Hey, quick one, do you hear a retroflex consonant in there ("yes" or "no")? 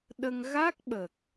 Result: no